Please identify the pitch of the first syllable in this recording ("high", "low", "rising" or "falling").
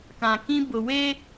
low